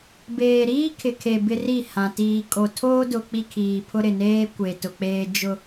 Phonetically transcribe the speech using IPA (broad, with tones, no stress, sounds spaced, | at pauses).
b eː˨ ɾ iː˦ kʰ ɪ˨ kʰ e˨ b ɪ˦ r i˦˨ h ã˨ t iː˨ kʼ o˨ tʰ oː˦ d ʊ˨ k͡p i˦ kʰ iː˨ pʰ ʊ˦ ɾ ɪ˨ n eː˦ kʷ e˨ t ʊ˨ k͡p eː˦ d͡ʒ ʊ˦